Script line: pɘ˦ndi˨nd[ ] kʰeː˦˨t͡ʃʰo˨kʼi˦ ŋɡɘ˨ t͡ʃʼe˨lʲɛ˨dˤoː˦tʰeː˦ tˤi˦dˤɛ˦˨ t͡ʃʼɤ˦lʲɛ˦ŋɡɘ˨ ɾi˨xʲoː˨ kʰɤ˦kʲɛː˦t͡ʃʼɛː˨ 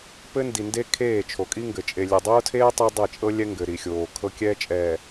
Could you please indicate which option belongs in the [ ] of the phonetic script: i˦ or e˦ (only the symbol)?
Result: e˦